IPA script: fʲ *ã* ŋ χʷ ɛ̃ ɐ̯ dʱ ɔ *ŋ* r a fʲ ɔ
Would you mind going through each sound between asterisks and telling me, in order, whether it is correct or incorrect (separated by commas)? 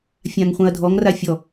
correct, correct